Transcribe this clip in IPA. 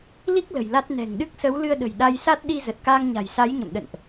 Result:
li˦˥k̚ lə̤˨˩jla˦˥t̚ nɛ̤˨˩ŋɗɨ˦˥k̚ sə˨˦wlɨ˧ə̯ɗə̤˨˩j ɗa˧jsa˦˥t̚ ɗi˧ zə˨˩t̚kaː˧ŋɲa̤˨˩j sa˨˦jɲə̰˧˨mɗə̰˧˨nʔ

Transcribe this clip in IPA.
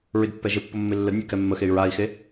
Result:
ɹɪdpːɛʒɪpːʊ mːɪlːədnʲɛ kɛmːəxey̯ ɹai̯xe

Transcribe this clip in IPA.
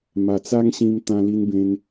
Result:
ma˨˩t͡sa˦ŋ ɕĩ˧m t̪ã˧li˧nbẽ˧n

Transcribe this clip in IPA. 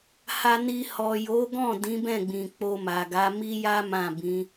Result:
ha˧ni˧ hɔ˨ jo˨˦ɡɔ̃˦˨ dĩ˨˦bɛ̃˦˨ɡ͡bĩ˨ k͡po˧ma˨ɡa˨˦ mi˦ja˦ mã˦˨bĩ˨˦

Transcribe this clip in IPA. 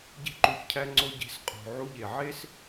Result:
ɟe̤˨ǃu˩çcʰæ˨ŋ͡ǀo˨ ɟe̤˨sqʼo̤˩ ʕu˨ʎe˩ ʕe˥s

